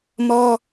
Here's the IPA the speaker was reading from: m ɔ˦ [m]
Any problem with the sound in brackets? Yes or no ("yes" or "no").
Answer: yes